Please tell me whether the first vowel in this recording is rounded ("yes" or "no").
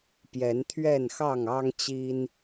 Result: no